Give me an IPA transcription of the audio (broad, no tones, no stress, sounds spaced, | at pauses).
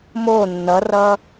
m o nː ʌ r ʌ